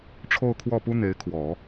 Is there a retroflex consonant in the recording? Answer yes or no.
yes